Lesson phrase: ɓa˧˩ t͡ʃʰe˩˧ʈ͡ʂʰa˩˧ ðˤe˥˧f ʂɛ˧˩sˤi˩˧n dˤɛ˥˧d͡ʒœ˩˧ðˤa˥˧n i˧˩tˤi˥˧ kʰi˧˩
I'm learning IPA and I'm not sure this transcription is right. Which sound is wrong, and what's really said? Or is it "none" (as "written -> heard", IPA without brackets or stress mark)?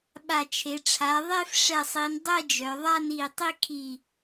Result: none